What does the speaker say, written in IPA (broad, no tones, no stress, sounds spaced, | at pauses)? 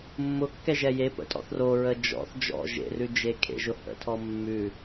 mː ʊ kː ɛ ʒ ɛ j e p ə̰ tʼ ɔ̰ θ r o ɹ ə d͡ʒ ɔ̰ θ d͡ʒ ɔ̰ ʒ ḛ r ʉ d͡ʒ e kʰ ḛ ʒ ʊ h ə̰ tʰ ɔ mː ʉ